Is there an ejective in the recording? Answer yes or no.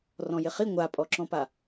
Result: yes